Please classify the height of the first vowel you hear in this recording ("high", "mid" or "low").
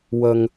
mid